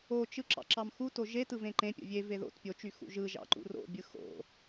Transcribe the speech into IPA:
o t͡ʃ ɯ ǁ ɑ̰ ǁ ɑ m x u t o ʒ e t ɯ v ẽ ǃ ẽ pʲ o̰ vʲ e v e ð o̰ t pʲ o t͡ʃ y x ṵ ʒ ɯ ʒ ɑ̰ ǃ ṵ r o̰ bʲ ɯ x o̰

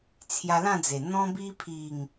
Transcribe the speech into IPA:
t͡sʰ j a˧ l ã˥˧ d͡z e˨˩ n̪ ɔ̃˧ b i˧ pʰ i˨˩ ŋ

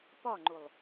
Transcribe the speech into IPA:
p ɒ ŋ͡ǃ u lˠ

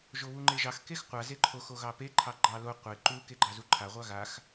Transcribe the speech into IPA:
ʒ o β u ŋ͡ǃ e ʒ ɑ x k e x qʷ a z e ǃʰ o x o ɣ ɑ p e ǃʰ ɑ ɡ͡ǃ ɑ l o qʷ e ǃ u k e ɡ͡ǃ ɑ z u ǃʰ a ʁʷ ɑ ɣ a x

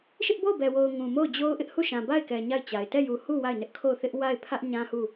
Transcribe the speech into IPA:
ʃ ɪ˦ ʔ b o˦˨ ʊ̯ b ɛ˨ w o˨ ʊ̯ ŋ ũ˨ m o˦˨ ʊ̯ d͡ʑ o˦ ʊ̯ ʔ ɪ˦ ʔ h u˦˨ ʃ ã˨ b a˦˨ ɪ̯ k ɛ˨ ɲ a˦˨ ɪ̯ t͡ɕ a˨ ɪ̯ t ɛ˦˨ j u˨ h u˦˨ w a˦˨ ɪ̯ n ɪ˦ ʔ kʰ o˦˨ ʊ̯ θ ɪ˦ ʔ w a˦˨ ɪ̯ pʰ ä˦ ʔ ɲ ã˦ h u˦˨

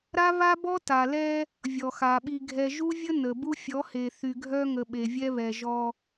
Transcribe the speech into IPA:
ɾ a˦ β a˦ b ɔ˦ t a˨ l ɛ˦ | vʲ ɔ˨ x a˨ ɓ i˨ ɡʱ ɛ˨ ʒ u˦ vʲ ə˦ n ə˨ b u˦ fʲ ɔ˨˦ h e˨ θ y˨ ɡʱ œ˦ ŋ ə˨ ɓ e˨ vʲ ɛ˦ β ɛ˨ ʒ ɔ˦

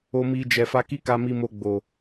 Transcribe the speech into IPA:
o˧ m i˧ d͡ʒ ɛ˨ f a˧ k i˦ k a˧ m i˧ m o˧ ɡ͡b o˨

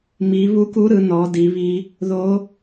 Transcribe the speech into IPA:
m i˨˦ β u˦˥ k u˦˥ ɾ ɯ˨˦ n ɔ˨˦ d i˨˦ β i˦˥ | ð o˦˥

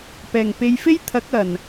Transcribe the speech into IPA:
p ɛː˨˩ ŋ p e˨˧ j f e˥ j t̪ʰ ɐ˨˥ k̚ ɐ˨˩ n

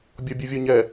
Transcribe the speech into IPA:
bʲ ɔ bʲ u vʲ ɔ ɲ ɛ

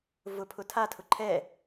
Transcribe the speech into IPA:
v ʊ pʰ ʊ tʰ a tʰ ʊ ǃʰ ɛ

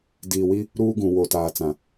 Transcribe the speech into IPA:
d iː˨ w i˦ | ɾ uː˦ ɡ ũ˨ w o˨ t aː˨ t͡s ã˨

